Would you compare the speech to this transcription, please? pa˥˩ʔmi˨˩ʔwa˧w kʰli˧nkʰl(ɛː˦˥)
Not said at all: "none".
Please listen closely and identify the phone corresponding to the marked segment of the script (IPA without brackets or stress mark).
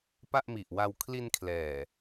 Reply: ɛː˨˩